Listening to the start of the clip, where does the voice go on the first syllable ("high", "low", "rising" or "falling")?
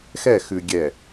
falling